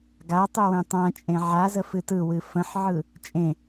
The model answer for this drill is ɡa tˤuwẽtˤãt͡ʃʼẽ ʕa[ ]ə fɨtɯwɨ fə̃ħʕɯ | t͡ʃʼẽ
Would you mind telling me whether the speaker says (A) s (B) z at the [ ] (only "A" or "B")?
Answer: B